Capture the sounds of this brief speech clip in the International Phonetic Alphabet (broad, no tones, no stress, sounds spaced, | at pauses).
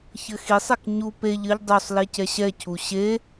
ç ɘ x i sˤ ɛ k ɲ u p e ʎ ɘ ʎ dˤ u sˤ l e c ɛ ɕ ɛ cʰ u ɕ e